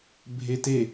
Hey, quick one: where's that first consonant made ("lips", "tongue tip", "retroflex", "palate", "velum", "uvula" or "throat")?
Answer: lips